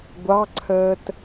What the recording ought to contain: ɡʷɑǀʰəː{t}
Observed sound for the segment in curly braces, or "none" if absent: t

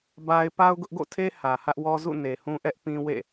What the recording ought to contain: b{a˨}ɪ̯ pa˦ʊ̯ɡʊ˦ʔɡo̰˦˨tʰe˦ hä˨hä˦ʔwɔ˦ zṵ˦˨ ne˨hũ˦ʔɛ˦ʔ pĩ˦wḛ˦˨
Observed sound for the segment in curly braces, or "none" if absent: a˦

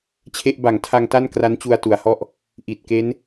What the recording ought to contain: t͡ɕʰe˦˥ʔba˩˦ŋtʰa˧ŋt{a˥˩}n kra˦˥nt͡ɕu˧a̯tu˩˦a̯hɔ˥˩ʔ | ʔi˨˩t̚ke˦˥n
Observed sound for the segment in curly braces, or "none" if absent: a˥˩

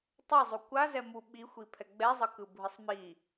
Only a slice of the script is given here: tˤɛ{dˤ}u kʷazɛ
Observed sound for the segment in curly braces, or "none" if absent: zˤ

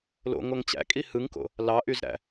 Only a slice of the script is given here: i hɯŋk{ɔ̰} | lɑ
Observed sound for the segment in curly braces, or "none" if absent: o̰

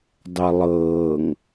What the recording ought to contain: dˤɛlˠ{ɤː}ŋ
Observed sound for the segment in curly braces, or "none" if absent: ɤː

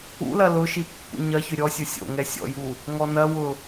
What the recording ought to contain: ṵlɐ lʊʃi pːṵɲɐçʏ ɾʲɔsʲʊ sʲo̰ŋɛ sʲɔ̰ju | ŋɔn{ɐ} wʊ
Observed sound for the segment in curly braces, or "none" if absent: ɐ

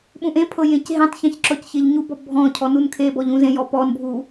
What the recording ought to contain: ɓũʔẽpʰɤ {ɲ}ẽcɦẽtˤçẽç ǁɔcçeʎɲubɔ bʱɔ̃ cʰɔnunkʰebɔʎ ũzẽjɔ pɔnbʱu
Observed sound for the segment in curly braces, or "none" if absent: j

